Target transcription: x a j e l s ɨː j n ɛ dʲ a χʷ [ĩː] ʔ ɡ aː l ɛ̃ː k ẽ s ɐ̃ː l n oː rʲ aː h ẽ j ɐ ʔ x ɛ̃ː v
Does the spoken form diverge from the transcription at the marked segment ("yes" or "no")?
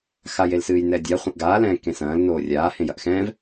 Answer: yes